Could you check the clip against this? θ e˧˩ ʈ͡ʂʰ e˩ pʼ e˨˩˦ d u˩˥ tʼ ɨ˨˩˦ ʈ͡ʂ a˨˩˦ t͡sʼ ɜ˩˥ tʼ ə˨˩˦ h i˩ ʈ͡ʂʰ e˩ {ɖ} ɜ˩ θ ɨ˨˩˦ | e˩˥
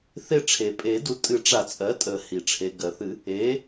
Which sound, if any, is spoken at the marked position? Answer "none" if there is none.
ɡ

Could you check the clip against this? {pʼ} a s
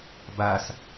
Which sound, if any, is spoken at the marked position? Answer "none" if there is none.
b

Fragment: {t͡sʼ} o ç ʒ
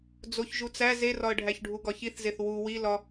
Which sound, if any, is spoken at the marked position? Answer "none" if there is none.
d͡z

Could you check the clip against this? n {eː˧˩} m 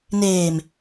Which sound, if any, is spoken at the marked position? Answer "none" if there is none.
eː˧˩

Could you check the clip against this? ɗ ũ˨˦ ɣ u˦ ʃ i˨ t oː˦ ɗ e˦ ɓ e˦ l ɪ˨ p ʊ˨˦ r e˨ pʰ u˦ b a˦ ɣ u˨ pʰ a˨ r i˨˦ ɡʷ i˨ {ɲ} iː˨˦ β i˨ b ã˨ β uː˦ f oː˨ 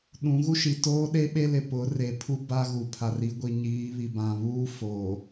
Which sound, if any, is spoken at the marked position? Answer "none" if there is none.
ɲ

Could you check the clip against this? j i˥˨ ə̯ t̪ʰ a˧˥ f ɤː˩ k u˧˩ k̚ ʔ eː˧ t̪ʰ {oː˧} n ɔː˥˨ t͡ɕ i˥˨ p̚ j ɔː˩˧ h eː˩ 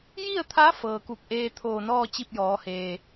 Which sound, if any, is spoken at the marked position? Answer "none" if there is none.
oː˧˩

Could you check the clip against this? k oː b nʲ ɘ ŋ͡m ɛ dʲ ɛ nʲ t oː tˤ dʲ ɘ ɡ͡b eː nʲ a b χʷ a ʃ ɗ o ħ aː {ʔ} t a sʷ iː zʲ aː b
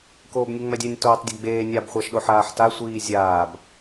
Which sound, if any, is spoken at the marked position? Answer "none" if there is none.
ħ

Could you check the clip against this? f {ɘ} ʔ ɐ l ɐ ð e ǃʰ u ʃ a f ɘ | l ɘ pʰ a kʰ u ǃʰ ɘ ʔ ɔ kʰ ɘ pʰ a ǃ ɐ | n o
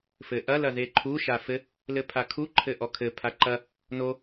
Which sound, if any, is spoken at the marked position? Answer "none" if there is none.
ɘ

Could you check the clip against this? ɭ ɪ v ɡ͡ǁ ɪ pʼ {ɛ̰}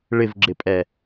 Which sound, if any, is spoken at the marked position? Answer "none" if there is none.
ɛ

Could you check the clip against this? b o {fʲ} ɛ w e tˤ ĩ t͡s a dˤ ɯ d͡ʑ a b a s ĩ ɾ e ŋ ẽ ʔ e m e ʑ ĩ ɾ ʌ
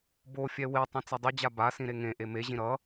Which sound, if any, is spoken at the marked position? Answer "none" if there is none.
fʲ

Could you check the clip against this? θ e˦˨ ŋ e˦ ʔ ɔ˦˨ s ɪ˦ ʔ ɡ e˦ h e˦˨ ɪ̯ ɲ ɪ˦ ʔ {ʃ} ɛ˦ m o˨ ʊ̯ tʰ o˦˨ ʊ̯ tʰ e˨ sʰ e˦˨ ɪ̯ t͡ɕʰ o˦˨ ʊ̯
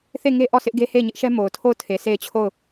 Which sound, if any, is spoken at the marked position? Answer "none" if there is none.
ʃ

